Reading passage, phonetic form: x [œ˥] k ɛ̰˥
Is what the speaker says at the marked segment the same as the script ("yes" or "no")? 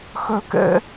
yes